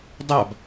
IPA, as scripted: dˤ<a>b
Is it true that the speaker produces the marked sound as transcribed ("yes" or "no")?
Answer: yes